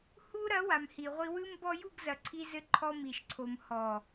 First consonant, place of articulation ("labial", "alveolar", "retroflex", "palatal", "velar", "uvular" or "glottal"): glottal